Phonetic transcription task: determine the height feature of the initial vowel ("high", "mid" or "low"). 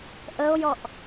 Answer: mid